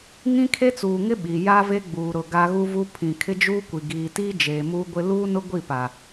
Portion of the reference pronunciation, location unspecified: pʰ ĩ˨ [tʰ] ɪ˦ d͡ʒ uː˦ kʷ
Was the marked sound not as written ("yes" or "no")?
yes